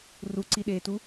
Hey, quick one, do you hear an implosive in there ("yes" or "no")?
yes